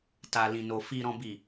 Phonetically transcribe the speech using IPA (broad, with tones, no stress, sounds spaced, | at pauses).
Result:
t a˨ l ĩ˨ n o˨ f i˨ ɾ ɔ̃˨ b i˨